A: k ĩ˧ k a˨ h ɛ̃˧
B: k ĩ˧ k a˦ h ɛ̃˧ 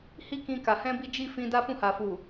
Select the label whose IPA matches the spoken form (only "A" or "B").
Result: A